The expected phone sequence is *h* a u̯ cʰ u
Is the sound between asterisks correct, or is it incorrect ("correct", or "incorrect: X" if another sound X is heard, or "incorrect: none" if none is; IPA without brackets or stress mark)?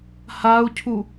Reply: correct